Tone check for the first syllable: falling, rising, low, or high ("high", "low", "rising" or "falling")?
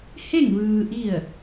falling